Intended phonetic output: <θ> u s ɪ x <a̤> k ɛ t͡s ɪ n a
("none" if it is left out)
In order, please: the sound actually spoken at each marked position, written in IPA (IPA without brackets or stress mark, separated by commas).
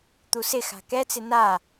t̪, a̤